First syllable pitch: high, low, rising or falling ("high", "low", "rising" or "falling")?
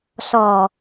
low